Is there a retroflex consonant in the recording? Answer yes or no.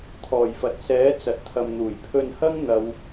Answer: no